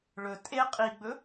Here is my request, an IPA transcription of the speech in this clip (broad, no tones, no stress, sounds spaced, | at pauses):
ɭ ɵ tʼ e qʼ i ɡ͡b ɵ